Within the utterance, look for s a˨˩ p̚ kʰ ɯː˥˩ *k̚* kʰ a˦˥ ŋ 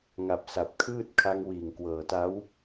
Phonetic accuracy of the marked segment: incorrect: t̚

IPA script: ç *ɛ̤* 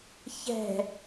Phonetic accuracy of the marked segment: correct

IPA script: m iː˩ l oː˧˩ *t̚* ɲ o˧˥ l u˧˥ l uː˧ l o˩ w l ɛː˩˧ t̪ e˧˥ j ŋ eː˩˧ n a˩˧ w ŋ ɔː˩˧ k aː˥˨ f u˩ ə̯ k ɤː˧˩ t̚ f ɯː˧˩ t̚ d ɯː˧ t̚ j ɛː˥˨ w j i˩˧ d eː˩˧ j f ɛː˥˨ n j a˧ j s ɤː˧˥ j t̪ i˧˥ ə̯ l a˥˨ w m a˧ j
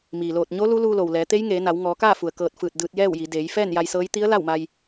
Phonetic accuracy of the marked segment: correct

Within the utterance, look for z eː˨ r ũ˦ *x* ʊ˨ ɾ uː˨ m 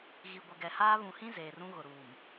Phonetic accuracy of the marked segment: incorrect: ɣ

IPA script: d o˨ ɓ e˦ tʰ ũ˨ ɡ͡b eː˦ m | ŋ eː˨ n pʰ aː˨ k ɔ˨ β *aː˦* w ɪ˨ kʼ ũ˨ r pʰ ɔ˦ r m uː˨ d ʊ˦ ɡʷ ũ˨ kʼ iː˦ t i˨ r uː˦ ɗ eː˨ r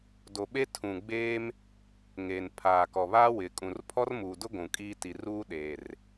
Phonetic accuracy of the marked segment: correct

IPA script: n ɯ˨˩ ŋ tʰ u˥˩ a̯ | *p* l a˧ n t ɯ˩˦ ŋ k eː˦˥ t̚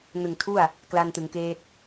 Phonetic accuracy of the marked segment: incorrect: k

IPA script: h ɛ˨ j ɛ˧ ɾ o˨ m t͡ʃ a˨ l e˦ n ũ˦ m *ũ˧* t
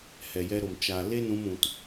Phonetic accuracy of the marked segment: correct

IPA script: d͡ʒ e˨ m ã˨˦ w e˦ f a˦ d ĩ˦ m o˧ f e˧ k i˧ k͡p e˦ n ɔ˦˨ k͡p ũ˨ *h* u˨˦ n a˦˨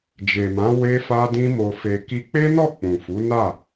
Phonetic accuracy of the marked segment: incorrect: f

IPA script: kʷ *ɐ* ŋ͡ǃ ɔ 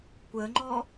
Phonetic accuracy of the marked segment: incorrect: ə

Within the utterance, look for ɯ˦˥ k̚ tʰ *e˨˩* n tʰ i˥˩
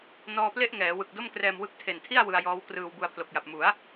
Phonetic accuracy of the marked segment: correct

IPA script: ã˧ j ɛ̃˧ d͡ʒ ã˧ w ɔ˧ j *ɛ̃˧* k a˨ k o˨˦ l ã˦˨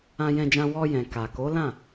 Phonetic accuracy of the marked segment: incorrect: ɛ̃˨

